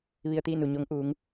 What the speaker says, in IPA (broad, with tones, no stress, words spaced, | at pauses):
ʋi˧ə̯t̪iː˥˨nu˩ɲo˧˥ŋ ʔuː˩˧ŋ